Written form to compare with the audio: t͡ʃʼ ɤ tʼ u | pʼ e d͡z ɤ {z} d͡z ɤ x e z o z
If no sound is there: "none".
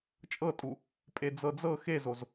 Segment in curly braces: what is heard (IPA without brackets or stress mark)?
none